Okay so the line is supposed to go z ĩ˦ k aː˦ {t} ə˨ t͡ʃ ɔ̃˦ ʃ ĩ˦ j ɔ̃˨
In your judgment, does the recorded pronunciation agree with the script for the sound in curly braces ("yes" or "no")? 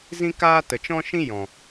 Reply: yes